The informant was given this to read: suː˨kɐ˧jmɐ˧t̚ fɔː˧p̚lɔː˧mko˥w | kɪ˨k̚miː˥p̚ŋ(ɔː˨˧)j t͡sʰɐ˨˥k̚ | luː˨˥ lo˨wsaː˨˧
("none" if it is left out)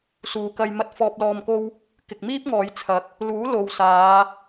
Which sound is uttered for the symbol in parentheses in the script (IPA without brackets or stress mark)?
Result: ɔː˨˧